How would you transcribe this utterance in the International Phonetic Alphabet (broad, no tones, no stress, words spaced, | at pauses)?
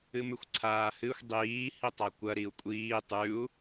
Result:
ɨmʉxʷǀʰaːhɨxʷ dˤiː hitˤakʷɐ ɾiu̯kʷʼiː tˤʉu̯